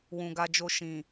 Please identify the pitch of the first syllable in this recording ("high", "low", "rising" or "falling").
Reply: low